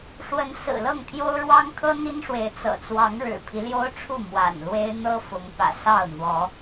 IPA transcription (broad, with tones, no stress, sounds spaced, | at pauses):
ʂ w ə˨˦ n s ɹ̩˨˩ l ɤ˥˨ ŋ t̪ʰ j o˦ ʊ̯ ɻ w ɑ˦ ŋ kʰ ɤ˦ n̪ i˦ n ʂ w e˨˦ ɪ̯ t͡s ɤ̰˨˩ t͡s w ɑ˨˦ ŋ ɻ ɻ̩˨˩ pʰ i˦ l j o˦ ʊ̯ ʈ͡ʂʰ u˥˨ m w a̰˨˩ n l w e˦ ɪ̯ n̪ ɤ˦ f ʊ˨˦ ŋ p ä̰˨˩ s ɑ˥˨ ʊ̯ n̪ w ɔ˨˦